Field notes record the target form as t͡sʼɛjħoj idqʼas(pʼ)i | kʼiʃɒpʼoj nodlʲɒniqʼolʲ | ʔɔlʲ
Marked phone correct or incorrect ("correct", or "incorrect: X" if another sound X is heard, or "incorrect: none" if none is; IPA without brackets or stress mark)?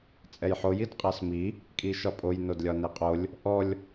incorrect: m